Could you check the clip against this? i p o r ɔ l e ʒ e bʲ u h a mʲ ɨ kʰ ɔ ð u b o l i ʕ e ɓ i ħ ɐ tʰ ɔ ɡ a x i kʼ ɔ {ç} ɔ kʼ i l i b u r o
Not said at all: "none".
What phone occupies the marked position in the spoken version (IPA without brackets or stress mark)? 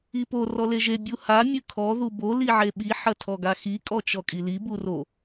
t͡ʃ